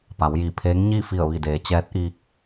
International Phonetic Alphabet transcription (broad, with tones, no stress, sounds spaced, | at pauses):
p a˩˧ w j iː˧˩ pʰ eː˧˥ ŋ ɲ iː˥˨ f i˧˩ ə̯ ʋ i˧˩ d eː˩˧ t͡ɕ ɛː˧˥ t̚ ʔ iː˧ k̚